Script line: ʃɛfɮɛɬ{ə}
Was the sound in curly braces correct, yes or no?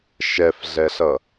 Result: no